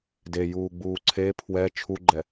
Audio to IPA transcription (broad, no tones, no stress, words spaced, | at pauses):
dejuːɡ͡buː ǀʰe pʰwɛ t͡ʃʰuɡ͡ǃɛ